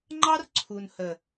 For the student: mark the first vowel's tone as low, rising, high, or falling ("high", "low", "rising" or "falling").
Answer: high